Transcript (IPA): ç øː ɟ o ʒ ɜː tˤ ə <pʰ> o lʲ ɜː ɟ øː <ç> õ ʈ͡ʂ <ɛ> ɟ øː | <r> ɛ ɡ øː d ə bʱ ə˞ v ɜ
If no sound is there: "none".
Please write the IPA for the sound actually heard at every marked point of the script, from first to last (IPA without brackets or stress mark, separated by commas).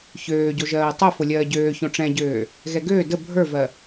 f, ç, ɛ̃, ɣ